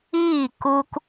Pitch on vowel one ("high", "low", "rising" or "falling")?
falling